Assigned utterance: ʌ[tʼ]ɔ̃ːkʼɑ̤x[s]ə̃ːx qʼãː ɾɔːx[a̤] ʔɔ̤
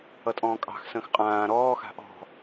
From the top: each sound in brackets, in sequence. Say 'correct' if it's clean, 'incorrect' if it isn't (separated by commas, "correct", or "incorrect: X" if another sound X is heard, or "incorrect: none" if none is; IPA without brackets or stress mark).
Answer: correct, correct, correct